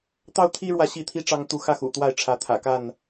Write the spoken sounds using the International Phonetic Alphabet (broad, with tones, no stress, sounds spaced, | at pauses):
t̪ ɑ˦ ʊ̯ t̪ʰ i˦ ɻ w ä˨ ɕ i˥˨ t̪ʰ i˦ ʈ͡ʂ ɑ˦ ŋ t̪ u˥˨ x ä˥˨ x ṵ˨˩ t̪ w a˥˨ ɪ̯ ʈ͡ʂʰ ä˨˦ t̪ʰ ä̰˨˩ k a˥˨ n